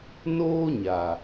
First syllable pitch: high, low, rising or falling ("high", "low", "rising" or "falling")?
high